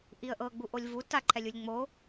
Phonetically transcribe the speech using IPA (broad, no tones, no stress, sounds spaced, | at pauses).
ʔ i ə̯ ʔ ɤ ɡ͡b u ʔ o lʲ v u t a ǃʰ ɛ lʲ u lʲ ŋ͡m o